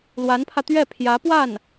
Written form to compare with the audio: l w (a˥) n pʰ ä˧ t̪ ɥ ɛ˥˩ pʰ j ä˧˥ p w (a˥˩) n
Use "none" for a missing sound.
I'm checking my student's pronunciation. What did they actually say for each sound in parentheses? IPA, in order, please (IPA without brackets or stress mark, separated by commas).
a˧˥, a˥˩